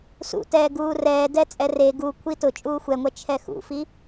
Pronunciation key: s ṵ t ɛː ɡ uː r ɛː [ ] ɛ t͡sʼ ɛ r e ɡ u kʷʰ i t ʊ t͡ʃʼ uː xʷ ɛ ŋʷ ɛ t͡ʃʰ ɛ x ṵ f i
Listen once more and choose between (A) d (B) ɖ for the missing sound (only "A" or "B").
A